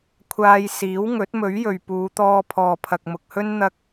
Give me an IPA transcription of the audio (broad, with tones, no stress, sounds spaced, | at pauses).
kʷʰ aː˧ j s iː˨˥ w ŋ ɵ˨˥ t̚ m ɵ˨˥ ɥ j ɵ˨ ɥ p uː˨˧ t̪ ɔː˧ pʰ ɔː˨ pʰ ɐ˨ k̚ m ʊ˨ k̚ h ɵ˥ n n̪ ɐ˥ k̚